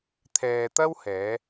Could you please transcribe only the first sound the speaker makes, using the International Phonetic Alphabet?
t̪ʰ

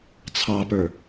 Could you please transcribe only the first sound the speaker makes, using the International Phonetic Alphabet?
t͡sʰ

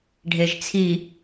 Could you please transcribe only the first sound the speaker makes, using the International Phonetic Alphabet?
ɖʱ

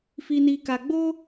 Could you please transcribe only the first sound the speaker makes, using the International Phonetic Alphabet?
f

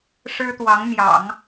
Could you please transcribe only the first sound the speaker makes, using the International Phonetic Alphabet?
ʂ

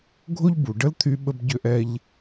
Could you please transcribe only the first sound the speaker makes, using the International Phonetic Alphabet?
ɡʱ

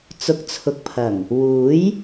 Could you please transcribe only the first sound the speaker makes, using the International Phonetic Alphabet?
t͡s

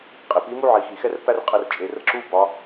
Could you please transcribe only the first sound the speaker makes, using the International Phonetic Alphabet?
qʼ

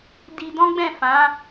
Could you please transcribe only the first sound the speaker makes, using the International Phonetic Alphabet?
d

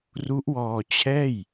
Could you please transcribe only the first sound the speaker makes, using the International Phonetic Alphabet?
r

